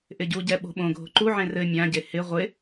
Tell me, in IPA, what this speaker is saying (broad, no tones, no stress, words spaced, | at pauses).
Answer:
ʔɪɟuɟɛ ɓo̤ɓõɡʱo̤ ǃuʕẽr ɘ mʲãɟe hɪ ʁʷɪ